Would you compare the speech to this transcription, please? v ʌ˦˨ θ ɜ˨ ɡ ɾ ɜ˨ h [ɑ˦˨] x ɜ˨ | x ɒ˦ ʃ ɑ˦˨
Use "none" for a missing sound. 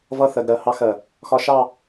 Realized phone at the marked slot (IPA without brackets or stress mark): ɑ˦